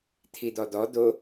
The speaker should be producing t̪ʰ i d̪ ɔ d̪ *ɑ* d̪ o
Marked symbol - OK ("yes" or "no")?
no